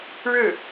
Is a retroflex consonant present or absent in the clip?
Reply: present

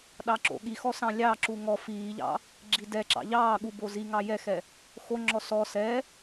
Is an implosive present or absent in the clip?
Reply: present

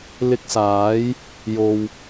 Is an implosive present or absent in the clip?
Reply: absent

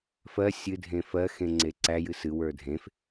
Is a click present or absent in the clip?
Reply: present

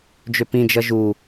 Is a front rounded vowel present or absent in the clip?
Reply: present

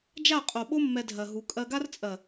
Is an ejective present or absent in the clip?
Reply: present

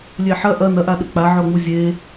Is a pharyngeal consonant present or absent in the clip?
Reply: present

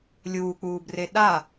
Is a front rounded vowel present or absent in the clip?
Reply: absent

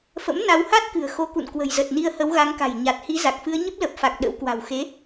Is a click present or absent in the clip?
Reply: absent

